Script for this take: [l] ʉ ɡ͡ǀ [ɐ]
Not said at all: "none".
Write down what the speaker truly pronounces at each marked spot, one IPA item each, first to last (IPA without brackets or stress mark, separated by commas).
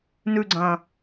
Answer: n, ɐ̃